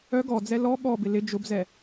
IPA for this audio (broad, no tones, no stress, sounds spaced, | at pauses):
œ ɡ ɔ d͡z ɛ l ɔ ɠ ɔ b ɪ l ɪ d͡ʒ ʊ b z ɛ